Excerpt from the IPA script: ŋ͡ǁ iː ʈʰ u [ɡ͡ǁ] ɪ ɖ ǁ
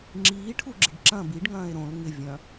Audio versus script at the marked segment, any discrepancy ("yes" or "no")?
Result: no